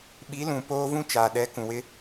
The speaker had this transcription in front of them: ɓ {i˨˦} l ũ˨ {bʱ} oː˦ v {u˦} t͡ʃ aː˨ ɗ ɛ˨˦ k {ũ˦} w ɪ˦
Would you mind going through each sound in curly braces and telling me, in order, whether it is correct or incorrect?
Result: correct, incorrect: p, incorrect: ũ˦, incorrect: ũ˨

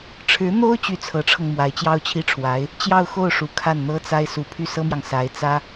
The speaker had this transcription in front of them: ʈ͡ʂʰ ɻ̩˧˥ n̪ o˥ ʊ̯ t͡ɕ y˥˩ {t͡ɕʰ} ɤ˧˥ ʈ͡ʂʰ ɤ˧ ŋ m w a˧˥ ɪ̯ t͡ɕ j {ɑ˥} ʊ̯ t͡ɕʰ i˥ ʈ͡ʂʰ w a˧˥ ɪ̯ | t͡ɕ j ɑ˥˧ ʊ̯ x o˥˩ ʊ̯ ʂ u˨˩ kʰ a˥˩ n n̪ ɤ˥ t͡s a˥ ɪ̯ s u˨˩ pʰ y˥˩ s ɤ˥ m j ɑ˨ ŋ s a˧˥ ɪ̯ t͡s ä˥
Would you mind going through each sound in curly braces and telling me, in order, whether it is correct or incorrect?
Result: incorrect: t͡sʰ, correct

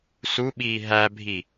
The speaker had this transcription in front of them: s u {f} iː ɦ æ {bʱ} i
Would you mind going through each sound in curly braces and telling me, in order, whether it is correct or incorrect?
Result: incorrect: ɓ, correct

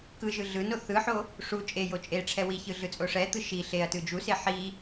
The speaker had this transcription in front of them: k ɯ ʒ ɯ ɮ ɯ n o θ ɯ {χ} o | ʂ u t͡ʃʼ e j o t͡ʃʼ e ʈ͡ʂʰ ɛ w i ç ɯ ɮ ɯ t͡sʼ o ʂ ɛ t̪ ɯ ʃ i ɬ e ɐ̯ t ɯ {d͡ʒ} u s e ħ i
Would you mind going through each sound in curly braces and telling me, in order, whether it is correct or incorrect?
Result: incorrect: ħ, correct

